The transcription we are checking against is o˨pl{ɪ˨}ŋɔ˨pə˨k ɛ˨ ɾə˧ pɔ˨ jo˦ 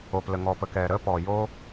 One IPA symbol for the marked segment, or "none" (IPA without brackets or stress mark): ə˨